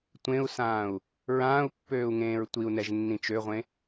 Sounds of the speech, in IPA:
tʷ ẽ u̯ s ãː u̯ | ɹ ãː u̯ pː øː u̯ ŋ ẽː ɹ tʷ i u̯ n ɛ ʒ nː ĩ t͡ʃ ø ʁʷ ẽ

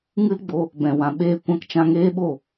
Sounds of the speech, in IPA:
ŋ ɨ˦ l ɡ͡b o˧ | b ɛ̃˨ w ã˨ ɓ eː˧ kʷ ã˧ k t͡ʃ ã˧ ŋ eː˦ ɓ o˦˨

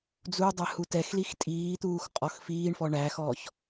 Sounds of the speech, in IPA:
d͡z u dˤ ɛ h u t ɛ x l i x tʼ iː t̪ uː x qʼ ɔ x f iː ɳ f ɔ ɳ æ x ɔ ç

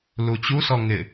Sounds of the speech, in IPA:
l u t͡ɕ u s ɔ ŋ ɪ

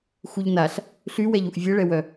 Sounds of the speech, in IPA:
x u ʎ n a ɬ | ɬ y w ɛ ʎ u ʔ vʲ ɛ ɭ ɛ w œ

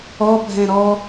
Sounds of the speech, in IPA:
ɔ bʱ ɛ̃ ɾ ɔ

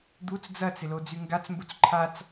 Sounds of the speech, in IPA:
d̪ u t͡s d͡z ɐ t͡s ɪ l o d͡z y ŋ ɡ a t͡s m b u t͡s ǃʰ a t͡s

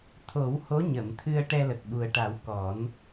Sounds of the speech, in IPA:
t̪ʰ o˨˩˦ w h o˧˥ ɲ ə˨˩˨ m t̪ʰ ɨ˧ ə̯ ʈ ɛ˧ l ə˨˩ k̚ ɓ u˨˩ ə̯ ʈ a˨˩˦ w k ɔ˨˩˦ n

